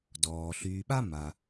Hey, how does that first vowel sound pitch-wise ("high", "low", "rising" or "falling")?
low